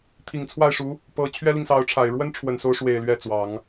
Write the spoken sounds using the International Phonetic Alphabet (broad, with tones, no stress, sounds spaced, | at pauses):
t̪ʰ i˨˩ ŋ t͡sʰ w a˥˩ ɪ̯ ʂ u˧˥ | p ɤ˧˥ t͡ɕʰ ɥ ɛ˥ l i˨ ŋ s ɑ˧˥ ʊ̯ ʈ͡ʂʰ a˨˩ ɪ̯ ɻ w ə˥ n ʈ͡ʂʰ w ə˨˩ n s o˧˥ ʊ̯ ʂ w e˨˩ ɪ̯ l ɥ ɛ˥˩ t͡s w ɑ˨˩˦ ŋ